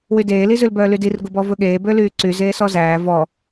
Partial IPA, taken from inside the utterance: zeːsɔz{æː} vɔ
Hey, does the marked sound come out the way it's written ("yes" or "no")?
yes